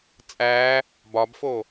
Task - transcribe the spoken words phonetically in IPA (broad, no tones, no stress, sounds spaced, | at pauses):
t͡sʼ æ | b ɒ b f o